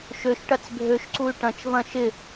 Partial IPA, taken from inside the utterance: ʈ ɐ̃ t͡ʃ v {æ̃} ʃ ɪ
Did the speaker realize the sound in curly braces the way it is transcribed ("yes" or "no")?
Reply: no